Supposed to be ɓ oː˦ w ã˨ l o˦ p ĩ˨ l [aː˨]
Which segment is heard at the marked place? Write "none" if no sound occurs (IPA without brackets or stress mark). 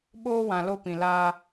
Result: aː˦